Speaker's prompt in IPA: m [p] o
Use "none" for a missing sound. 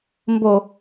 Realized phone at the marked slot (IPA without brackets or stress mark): b